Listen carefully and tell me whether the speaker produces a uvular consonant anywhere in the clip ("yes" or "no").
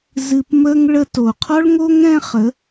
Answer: yes